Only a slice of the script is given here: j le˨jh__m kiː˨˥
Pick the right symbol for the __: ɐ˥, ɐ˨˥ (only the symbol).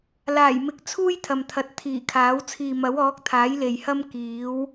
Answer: ɐ˥